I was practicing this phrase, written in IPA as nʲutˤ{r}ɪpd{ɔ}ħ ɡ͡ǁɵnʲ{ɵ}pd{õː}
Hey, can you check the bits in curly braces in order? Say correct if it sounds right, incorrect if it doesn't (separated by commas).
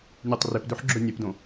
correct, incorrect, incorrect, incorrect